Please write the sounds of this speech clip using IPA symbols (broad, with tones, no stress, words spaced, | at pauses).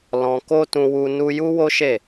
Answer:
lɔ̃˧ ko˦tũ˧wu˧ nu˦ ju˦wo˦ ʃe˦˨